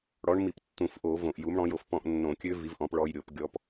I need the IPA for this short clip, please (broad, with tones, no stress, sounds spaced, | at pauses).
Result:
ɽ ɔ˨˥ ɳ m i˧˩˧ p tː ũ˧˩˧ f ʔ o˧˩˧ v õ˧˩˧ ʔ j u˨˥ m ɽ ɔ̃˨˥ j o˧ f p ɔ̃˧ ʔ nː õ˧˩˧ kʲ ø˦˥ v i˨˥ v ʔ ɔ̃˨˥ p ɭ ɔ˧ j ɾʲ o˧˩˧ p ɡʲ ɔ˨˥ p